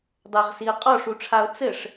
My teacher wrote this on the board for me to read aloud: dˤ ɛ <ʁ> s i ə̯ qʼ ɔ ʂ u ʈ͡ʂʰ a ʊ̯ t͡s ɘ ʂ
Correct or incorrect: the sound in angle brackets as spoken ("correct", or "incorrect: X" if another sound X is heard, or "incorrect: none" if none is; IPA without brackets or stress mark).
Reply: correct